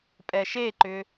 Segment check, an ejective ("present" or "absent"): present